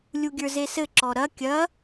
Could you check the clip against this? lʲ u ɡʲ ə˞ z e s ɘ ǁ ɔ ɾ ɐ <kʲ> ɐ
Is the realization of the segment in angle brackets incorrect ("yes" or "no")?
no